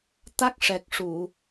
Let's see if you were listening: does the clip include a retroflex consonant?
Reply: yes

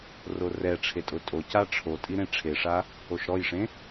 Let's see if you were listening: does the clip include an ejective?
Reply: yes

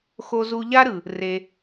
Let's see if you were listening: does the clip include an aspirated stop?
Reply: no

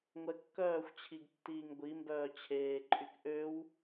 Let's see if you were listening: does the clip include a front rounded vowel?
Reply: yes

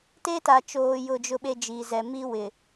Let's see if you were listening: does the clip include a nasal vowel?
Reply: no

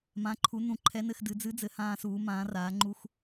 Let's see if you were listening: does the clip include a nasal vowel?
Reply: yes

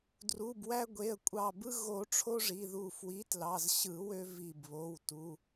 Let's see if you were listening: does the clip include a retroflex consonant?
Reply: yes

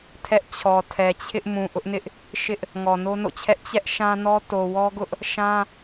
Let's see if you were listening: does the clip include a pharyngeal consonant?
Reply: no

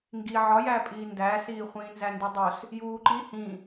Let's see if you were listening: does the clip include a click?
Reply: yes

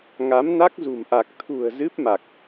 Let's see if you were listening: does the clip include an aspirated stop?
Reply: yes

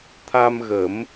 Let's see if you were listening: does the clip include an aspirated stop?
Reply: yes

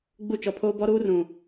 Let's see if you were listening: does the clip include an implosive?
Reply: no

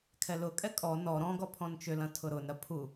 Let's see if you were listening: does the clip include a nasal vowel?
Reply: yes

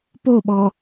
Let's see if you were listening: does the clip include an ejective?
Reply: no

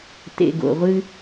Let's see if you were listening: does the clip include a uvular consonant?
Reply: yes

